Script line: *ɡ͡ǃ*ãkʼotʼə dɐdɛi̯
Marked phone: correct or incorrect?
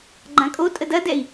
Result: correct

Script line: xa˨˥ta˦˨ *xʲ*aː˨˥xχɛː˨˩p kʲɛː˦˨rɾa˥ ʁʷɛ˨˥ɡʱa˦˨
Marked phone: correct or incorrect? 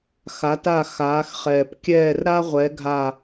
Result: incorrect: x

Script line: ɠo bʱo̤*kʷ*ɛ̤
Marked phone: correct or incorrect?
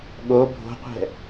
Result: incorrect: qʷ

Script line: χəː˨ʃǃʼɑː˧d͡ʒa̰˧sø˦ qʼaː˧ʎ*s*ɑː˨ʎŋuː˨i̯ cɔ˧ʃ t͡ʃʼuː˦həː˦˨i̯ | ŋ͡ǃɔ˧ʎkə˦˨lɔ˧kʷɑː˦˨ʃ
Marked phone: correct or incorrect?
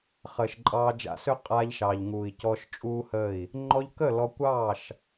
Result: incorrect: ʃ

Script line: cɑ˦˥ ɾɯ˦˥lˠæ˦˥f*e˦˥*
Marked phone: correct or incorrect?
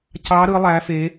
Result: correct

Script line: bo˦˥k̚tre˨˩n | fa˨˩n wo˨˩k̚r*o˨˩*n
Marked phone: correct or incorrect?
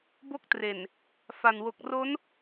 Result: incorrect: o˦˥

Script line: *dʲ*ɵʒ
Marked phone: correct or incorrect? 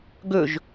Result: incorrect: ɡ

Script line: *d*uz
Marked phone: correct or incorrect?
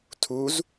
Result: incorrect: tʰ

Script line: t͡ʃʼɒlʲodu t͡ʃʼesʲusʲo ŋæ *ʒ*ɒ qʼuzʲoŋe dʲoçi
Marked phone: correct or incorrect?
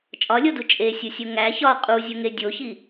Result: incorrect: ç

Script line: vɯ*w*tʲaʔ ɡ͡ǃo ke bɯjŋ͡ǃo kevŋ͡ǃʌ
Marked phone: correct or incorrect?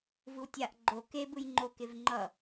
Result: correct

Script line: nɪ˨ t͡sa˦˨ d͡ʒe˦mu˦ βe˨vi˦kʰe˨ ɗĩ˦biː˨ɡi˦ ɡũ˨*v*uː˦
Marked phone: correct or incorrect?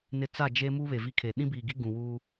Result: incorrect: w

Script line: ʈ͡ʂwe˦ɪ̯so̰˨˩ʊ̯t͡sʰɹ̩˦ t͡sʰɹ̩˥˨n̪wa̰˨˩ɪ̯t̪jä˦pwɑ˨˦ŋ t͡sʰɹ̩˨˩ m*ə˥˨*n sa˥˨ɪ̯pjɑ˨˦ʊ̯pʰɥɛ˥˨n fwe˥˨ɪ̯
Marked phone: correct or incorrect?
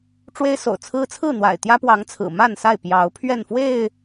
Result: incorrect: a˥˨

